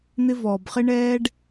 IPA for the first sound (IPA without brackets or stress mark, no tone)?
n̪